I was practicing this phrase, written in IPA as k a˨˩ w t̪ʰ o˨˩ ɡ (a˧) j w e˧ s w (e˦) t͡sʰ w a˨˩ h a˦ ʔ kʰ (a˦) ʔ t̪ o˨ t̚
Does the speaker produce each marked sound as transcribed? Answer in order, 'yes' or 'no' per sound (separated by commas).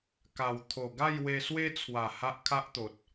no, yes, yes